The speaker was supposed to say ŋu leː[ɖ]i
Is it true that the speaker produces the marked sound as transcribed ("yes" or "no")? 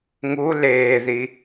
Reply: no